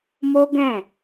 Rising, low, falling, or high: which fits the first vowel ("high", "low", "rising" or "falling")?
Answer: high